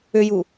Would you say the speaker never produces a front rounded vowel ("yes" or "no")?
no